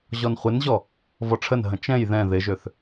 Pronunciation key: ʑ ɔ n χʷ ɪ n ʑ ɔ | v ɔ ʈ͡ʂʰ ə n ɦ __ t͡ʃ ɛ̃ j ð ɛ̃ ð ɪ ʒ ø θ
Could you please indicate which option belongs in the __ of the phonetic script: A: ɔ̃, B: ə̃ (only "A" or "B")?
B